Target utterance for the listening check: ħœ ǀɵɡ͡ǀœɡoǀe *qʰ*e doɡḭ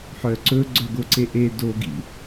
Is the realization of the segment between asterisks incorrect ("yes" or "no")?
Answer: yes